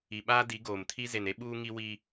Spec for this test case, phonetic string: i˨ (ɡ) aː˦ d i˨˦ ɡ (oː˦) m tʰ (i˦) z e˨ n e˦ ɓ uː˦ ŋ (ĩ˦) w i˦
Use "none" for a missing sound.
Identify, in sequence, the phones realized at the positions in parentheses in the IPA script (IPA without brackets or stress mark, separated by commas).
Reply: ɓ, oː˨, i˦, i˦